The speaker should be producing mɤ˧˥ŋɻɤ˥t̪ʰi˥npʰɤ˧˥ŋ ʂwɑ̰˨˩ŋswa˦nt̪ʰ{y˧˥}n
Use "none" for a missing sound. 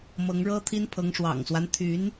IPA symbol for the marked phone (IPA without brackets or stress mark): y˧˥